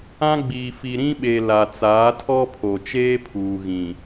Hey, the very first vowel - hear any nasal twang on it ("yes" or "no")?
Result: yes